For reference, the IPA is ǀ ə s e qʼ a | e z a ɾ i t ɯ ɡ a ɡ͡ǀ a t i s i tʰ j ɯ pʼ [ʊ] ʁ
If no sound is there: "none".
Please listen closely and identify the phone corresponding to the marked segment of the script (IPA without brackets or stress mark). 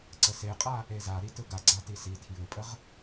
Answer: ə